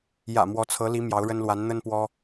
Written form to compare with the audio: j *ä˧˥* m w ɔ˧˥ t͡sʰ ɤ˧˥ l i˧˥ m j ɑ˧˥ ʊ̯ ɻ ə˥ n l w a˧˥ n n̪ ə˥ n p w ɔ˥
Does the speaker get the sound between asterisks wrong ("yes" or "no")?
yes